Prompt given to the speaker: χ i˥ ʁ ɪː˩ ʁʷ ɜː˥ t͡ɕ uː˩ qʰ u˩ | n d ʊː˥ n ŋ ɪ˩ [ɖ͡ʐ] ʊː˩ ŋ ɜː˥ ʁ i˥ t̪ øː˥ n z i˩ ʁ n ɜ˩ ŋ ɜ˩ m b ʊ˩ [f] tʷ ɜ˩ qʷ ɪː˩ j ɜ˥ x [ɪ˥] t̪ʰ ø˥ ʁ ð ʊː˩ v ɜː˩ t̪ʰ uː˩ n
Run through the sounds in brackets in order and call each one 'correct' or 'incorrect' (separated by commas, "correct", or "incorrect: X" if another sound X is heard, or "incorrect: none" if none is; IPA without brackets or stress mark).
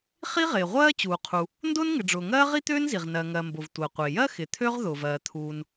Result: correct, incorrect: v, incorrect: ɪ˩